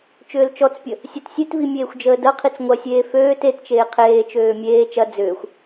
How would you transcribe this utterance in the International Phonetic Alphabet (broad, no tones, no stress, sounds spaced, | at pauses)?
t͡ʃ ʏː l t͡ʃ ɔ t͡s pʲ ə | sʲ ø t sʲ e t v i mʲ eː xʷ d͡ʒ əː d ɐ qʰ i t͡s ŋʷ ɐ sʲ eː f øː t e t t͡ʃ eː qʰ eː t͡ʃ øː mʲ eː t͡ʃ ɐ d͡z ʏː xʷ